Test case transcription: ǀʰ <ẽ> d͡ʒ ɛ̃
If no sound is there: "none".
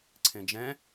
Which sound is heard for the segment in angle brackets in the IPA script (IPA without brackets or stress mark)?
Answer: ẽ